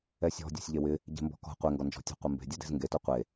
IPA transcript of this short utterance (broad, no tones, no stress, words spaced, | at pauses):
ɛsʲɔ̤ dʲɔ̤sʲʎewɪ | ɟe̤mbɔ̤kɔ̤ qʷeŋɡɔnd͡ʒɔ̤ tʲɔ̤qʷembe̤ dʲode̤zŋɡeto qʷe